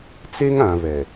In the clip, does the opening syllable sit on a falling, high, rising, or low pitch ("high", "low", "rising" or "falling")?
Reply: high